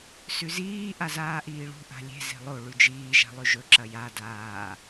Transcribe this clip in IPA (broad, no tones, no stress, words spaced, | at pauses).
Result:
sʉziː ʔazaːʔiːɭṳ ʔa̤lʲe̤ ze̤lˠo ɭʉd͡ʒiː ʒa̤lˠʉʒɵ ǁɐja daː